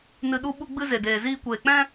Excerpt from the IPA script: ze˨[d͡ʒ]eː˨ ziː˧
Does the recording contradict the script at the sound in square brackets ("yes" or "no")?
yes